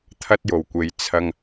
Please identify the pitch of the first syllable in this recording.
high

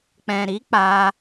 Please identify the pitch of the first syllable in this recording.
low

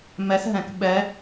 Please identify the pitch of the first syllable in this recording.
rising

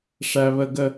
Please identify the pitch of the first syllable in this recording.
high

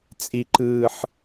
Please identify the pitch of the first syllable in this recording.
low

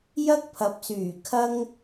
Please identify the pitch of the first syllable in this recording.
high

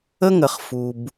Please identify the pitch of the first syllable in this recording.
high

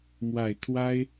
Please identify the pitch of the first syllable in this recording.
low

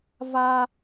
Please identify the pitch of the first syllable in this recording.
high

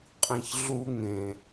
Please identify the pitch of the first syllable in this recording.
low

